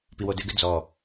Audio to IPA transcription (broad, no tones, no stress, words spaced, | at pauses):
piwodɘɡɘ d͡zɔ